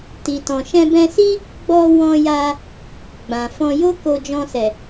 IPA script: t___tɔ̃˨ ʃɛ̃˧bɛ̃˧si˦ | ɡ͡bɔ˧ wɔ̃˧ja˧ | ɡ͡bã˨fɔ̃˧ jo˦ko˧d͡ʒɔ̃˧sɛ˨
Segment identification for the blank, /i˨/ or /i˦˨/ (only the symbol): i˨